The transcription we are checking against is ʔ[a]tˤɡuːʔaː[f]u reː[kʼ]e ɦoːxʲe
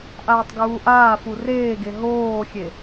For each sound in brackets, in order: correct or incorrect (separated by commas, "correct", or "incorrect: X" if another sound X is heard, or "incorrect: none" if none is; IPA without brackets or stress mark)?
incorrect: aː, correct, incorrect: ɡ